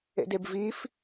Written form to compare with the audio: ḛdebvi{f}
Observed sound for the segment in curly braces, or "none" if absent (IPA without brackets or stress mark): f